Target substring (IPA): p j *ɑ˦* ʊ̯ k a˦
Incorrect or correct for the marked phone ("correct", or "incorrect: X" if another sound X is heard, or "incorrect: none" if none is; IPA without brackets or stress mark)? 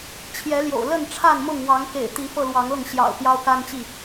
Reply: correct